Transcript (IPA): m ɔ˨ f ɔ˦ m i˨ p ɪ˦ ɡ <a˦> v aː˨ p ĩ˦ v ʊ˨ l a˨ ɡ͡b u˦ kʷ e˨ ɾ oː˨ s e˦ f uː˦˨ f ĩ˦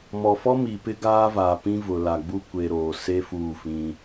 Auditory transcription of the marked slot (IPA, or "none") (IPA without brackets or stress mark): aː˦